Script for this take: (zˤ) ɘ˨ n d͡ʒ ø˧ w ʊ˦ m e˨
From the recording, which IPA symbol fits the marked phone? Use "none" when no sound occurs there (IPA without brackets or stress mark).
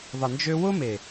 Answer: ðˤ